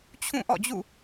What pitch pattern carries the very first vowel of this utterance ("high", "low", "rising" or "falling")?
falling